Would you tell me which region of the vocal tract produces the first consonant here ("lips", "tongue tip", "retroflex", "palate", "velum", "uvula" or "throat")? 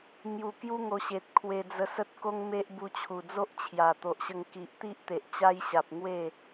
velum